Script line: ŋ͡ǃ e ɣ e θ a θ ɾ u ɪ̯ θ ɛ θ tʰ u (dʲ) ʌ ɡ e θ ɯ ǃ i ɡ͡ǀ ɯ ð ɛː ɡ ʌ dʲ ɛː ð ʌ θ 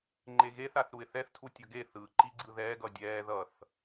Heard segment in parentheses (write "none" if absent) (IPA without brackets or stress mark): tʲ